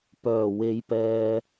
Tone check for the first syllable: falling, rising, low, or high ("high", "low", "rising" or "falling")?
low